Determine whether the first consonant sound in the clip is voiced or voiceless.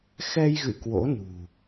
voiceless